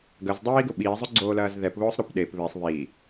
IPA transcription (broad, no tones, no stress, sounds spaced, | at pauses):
ɡ ɐ z dˤ iː ɡ ʊ ɓ iː zˤ ʊ ɡ͡ǀ oː l ɐː z ð ɛ p β ʊː sˤ ɾ o p ɗ e p β e sˤ β i